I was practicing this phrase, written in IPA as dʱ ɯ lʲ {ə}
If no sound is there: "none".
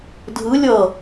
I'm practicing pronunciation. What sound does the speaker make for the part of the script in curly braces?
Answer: ʌ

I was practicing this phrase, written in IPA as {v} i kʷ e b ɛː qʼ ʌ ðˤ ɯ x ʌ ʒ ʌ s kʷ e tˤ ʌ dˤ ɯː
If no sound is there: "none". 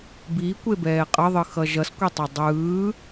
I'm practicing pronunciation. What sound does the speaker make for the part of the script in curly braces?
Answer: b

